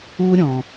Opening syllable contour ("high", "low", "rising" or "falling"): high